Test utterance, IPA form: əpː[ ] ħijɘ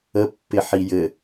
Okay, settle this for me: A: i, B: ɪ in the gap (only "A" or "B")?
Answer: B